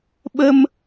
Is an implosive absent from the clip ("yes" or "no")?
no